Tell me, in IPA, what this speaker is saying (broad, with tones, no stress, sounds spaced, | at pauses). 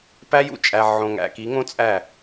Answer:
p æ˦ j ṵ˦ t͡ʃʼ æ˨ ʕ õ˨ ŋ æ̰˨ k i˨˦ ŋ õ˦ t͡sʼ æ˦˨